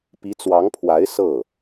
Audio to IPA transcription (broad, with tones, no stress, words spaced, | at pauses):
pi˧˥t͡swɑ˧˥ŋpʰwa˧˥ɪ̯ sɤ˥˩